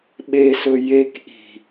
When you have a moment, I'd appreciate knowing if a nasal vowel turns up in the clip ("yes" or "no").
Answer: no